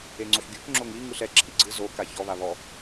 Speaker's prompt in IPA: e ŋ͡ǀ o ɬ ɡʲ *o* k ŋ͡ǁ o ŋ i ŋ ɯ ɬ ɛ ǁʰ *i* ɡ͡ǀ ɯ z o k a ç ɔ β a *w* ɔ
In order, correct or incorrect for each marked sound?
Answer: incorrect, correct, incorrect

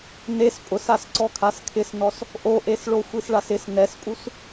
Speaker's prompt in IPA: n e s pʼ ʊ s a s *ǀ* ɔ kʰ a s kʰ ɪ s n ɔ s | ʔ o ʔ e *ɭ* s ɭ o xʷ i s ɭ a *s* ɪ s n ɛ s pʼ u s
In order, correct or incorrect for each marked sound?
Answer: correct, incorrect, correct

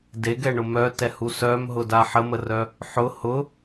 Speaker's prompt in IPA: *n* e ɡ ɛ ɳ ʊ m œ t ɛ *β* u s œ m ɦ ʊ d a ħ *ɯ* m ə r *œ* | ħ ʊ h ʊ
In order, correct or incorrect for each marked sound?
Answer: incorrect, incorrect, incorrect, correct

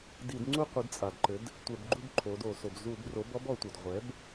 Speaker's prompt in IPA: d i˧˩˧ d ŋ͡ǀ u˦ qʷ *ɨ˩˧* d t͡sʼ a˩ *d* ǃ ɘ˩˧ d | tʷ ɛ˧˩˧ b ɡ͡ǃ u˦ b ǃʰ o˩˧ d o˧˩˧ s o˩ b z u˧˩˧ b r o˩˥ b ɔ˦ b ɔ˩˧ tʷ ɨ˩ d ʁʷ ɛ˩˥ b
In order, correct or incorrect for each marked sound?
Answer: correct, correct

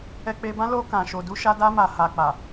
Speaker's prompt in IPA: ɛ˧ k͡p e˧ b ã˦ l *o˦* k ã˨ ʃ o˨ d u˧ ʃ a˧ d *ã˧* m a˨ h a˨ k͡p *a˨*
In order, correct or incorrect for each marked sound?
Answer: incorrect, incorrect, correct

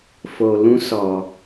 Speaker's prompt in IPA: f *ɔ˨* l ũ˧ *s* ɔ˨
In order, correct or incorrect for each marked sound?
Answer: incorrect, correct

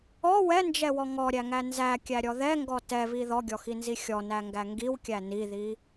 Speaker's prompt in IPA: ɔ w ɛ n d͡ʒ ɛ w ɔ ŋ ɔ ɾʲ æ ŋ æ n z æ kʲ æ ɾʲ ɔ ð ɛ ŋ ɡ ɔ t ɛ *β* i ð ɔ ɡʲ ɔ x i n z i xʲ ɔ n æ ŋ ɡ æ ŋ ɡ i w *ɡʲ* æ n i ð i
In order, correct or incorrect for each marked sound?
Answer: correct, incorrect

